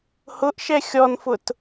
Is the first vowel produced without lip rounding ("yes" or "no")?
no